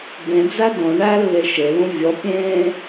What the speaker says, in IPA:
b ẽ d͡z æ d õ ɳ æ lː e ʃ e l ũ vʲ ɔ pʲ ẽː

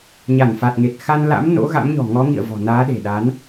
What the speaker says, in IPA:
ɲ a˧˩ n f a˨˩ t̚ ŋ e˨˩ t̚ x a˧ n l a̰˧˥ m n o̰˧˥ ɣ a̰˧˥ m ɲ ɔ̤˨˩ ŋ ɔ˨˦ ŋ ḭ˧˨ ə̯ v ɔ̤˨˩ n aː˨˦ ɗ e̤˨˩ ɗ a˨˦ n

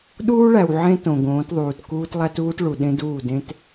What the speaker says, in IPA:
ɗ uː˦ ɭ æ˨ w ʕ ẽ˦ t õ˨ ɡ õː˨˦ t ðˤ uː˨ t k uː˦ t lˠ æ˦ t uː˦ t ɭ u˨ ɗ ẽ˦ d uː˦˨ d ẽ˦ t

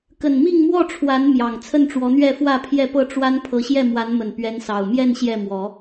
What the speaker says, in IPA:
k ə˨˩ n m i˥˨ ŋ m w ɔ˥˨ ʈ͡ʂʰ w a˨˦ n m j ɑ˨˩ ŋ t͡sʰ ə˥˨ n ʈ͡ʂ w ɔ˨˦ n̪ ɥ ɛ˥˨ f w ä˥˨ pʰ j ɛ˥˨ p ɤ˥˨ ʈ͡ʂ w a˦ n pʰ ɤ˨˦ ɕ j ɛ˥˨ m w a˨˦ n m ə˨˩ n p ɥ ɛ˨˦ n s ɑ˨˩ ʊ̯ m j ɛ˥˨ n ɕ j ɛ˥˨ m w ɔ˨˦

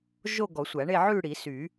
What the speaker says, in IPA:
ʒ o˥˧ ɡ ɔ˨˩˦ sʷ æ˨˩˦ ɳ e˥˧ ʕ ʉ˥˧ ɽ i˨˩˦ s y˨˩˦

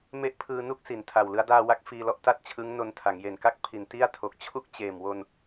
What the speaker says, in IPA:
m e˥˩ ʔ pʰ ɯː˧ n u˥˩ k̚ s i˩˦ n tʰ a˨˩ w l ɯ˦˥ a̯ d aː˧ w a˦˥ k̚ f iː˧ l ɔ˥˩ ʔ t a˥˩ t̚ t͡ɕʰ ɯ˦˥ ŋ n o˧ n tʰ a˩˦ ŋ j e˨˩ n k a˥˩ k̚ pʰ i˨˩ n t i˥˩ a̯ tʰ o˨˩ k̚ t͡ɕʰ u˥˩ k̚ t͡ɕ eː˨˩ m w o˧ n

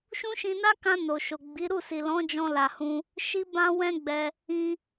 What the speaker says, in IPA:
ʃ ũ˦ ʃ ĩ˧ n a˦ k ã˧ n o˨ ʃ o˨ ɡ͡b i˨˦ ɾ u˦˨ s i˨ l ɔ̃˨˦ d͡ʒ ɔ̃˧ l a˨ h ũ˧ | ʃ i˦ b ã˦ w ɛ̃˦ ɡ͡b ɛ˧ | ĩ˧

